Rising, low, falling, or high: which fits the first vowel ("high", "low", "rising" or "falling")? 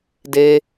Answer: high